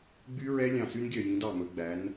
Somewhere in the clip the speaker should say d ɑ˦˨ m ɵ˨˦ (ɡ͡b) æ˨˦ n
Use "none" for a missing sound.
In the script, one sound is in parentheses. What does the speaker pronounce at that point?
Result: ɡ͡b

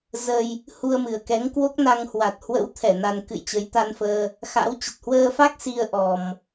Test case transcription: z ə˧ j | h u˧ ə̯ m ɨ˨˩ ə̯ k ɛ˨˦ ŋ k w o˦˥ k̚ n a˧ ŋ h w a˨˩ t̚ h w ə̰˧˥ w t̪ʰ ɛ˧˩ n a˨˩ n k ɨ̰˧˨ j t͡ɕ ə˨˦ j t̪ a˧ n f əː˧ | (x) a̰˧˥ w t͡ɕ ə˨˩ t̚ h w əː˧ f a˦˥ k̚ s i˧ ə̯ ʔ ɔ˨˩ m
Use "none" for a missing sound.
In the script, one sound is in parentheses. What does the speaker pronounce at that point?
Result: x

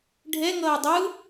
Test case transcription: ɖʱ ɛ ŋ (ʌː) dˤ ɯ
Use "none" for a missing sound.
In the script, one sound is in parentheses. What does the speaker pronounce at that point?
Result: ʌː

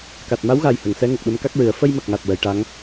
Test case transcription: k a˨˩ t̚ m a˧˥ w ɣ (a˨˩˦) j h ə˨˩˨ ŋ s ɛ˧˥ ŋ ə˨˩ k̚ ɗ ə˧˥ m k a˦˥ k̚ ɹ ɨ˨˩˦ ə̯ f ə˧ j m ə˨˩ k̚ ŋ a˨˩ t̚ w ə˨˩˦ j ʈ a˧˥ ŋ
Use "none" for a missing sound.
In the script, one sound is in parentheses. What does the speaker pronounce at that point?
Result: a˨˩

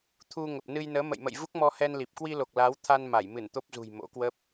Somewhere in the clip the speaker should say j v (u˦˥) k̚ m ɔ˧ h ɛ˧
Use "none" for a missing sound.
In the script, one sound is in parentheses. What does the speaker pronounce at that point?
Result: u˦˥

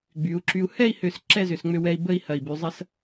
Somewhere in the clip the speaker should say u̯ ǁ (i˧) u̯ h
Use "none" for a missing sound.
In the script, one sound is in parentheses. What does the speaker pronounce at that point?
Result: y˧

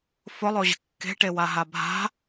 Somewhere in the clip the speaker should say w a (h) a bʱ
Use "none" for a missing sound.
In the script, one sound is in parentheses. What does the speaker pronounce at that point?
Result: ɦ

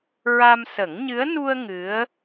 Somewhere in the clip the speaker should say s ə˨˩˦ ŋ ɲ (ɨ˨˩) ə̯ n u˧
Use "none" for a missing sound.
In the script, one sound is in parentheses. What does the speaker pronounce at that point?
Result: ɨ˧˥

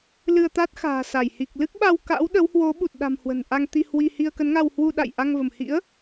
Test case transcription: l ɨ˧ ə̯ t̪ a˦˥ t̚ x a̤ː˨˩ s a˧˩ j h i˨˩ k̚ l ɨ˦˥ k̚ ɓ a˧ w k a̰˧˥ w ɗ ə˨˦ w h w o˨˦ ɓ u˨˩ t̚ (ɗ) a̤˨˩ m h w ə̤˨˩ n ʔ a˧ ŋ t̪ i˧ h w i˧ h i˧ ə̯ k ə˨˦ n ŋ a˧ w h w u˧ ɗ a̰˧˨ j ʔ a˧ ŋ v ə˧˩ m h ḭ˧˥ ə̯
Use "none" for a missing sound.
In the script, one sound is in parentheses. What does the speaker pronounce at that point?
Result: ɗ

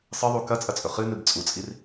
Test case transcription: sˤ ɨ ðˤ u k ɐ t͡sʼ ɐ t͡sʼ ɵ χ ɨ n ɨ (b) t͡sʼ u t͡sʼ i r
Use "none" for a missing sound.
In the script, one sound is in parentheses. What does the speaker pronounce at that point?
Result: b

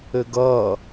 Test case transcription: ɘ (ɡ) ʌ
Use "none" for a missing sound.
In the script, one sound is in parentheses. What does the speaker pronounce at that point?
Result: ɡ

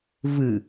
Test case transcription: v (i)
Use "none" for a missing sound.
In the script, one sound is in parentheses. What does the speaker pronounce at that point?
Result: ɨ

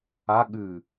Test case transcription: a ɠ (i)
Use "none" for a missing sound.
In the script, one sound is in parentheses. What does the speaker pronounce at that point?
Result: ɨ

